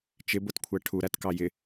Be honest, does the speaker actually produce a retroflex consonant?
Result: yes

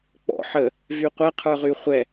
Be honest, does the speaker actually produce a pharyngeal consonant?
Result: yes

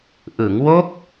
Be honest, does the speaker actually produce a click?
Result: no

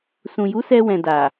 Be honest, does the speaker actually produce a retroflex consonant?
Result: no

